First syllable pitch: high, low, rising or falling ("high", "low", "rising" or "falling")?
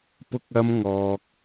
high